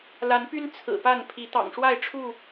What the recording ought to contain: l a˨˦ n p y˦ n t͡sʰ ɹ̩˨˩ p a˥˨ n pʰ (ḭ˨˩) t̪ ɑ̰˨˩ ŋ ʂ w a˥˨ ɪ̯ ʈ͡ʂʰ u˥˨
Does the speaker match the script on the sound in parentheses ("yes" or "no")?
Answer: no